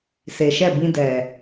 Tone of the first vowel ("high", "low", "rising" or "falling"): low